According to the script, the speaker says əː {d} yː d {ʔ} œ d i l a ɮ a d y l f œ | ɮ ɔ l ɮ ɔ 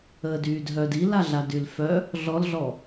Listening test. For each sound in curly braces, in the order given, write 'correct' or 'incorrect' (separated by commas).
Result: correct, incorrect